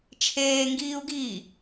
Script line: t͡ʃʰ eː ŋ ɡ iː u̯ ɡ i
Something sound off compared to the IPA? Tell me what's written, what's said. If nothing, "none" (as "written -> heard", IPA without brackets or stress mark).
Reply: none